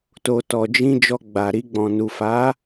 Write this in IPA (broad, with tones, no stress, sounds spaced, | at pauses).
t o˨ t ɔ˨ d͡ʒ ĩ˧ d͡ʒ ɔ˧ ɡ͡b a˨ ɾ i˧ ɡ͡b ɔ̃˨ n u˨ f a˨˦